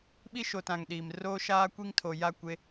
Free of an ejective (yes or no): yes